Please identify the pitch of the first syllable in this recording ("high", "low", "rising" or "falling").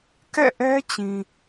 falling